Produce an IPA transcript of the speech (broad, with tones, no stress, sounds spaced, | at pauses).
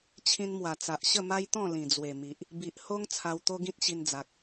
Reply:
t͡ɕʰ ĩ˧ n m w a˨˩ t͡s a˨ ʔ ɕ ə˥˧ m a˦ j t̪ ɔ̃˥˧ l ĩ˨˩ d͡z w e˨˩ m i˨ ʔ | b i˨ ʔ h o˦ ŋ t͡sʰ a˧ w t̪ o˦ ɡ ĩ˦ t̚ ɕ i˧ n d͡z a˨ k̚